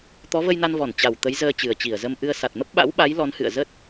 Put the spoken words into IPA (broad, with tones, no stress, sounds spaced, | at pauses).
t̪ ɔ˨˦ v ə˧ j n a˧ n v ɔ˧˩ n t͡ɕ a˨˩ w t̪ ə˨˦ j z əː˧ t͡ɕ ɨ˨˩ ə̯ t͡ɕ i˧˩ ə̯ z ə˧ m ʔ ɨ˧ ə̯ s a˨˩ t̚ m ə˦˥ p̚ ɓ a̰˧˥ w ɓ a˨˦ j l ɔ˨˦ n h ɨ̰˧˨ ə̯ z ə˦˥ t̚